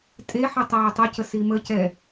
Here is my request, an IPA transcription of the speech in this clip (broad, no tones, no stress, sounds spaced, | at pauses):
tʼ e ħ ə tˤ ɐː tˤ ʊ c ə s i m ə c ɛ